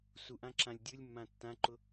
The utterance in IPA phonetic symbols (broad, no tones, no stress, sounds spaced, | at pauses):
s u ʔ ã ǁ ã lʲ dʲ ɯ lʲ mː ã tː ã ǃ ʊ